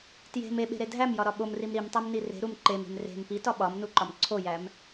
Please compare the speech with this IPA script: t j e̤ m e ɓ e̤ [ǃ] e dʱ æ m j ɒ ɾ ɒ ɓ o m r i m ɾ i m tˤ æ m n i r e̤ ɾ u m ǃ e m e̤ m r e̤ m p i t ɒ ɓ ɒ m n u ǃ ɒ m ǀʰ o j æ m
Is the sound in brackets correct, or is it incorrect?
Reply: incorrect: ɾ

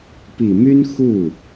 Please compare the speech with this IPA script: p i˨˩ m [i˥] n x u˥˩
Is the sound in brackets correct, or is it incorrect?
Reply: incorrect: y˥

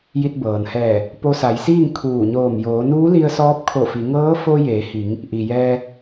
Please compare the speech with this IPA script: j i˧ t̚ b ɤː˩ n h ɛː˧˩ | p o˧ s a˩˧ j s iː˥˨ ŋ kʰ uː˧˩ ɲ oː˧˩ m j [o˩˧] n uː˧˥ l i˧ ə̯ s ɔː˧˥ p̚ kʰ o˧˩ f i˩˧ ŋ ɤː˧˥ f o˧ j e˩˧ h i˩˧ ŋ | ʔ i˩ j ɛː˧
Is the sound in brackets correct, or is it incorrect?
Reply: incorrect: oː˩˧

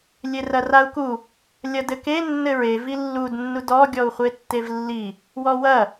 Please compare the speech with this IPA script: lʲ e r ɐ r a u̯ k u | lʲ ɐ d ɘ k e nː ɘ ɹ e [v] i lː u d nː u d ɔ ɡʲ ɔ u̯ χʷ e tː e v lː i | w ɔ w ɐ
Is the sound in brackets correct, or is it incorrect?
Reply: correct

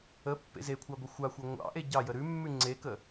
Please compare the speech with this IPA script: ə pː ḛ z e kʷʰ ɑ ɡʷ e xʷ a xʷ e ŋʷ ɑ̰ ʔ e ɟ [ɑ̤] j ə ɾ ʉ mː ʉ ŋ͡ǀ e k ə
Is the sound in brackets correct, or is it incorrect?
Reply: incorrect: ɑ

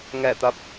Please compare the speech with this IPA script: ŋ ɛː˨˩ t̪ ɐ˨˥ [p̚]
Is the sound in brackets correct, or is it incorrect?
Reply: correct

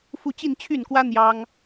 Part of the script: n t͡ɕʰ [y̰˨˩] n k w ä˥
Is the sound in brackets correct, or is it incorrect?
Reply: incorrect: y˥˩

